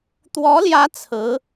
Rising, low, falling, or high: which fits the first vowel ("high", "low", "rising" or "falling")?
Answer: rising